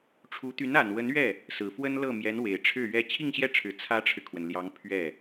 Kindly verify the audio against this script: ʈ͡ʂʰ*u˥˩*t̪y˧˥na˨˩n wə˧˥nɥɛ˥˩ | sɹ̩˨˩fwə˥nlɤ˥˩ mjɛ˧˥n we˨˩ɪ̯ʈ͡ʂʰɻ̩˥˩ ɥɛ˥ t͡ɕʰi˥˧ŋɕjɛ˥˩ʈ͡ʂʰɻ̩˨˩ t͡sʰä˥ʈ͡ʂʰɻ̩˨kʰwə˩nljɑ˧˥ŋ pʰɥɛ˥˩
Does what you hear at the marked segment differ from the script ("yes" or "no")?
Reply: yes